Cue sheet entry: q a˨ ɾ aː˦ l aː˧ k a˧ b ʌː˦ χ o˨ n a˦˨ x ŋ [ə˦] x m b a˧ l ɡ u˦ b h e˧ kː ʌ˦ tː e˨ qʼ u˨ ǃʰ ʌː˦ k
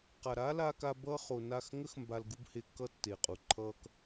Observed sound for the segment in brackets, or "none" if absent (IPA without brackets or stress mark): ə˦